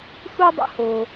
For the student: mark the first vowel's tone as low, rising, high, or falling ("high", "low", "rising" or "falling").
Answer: high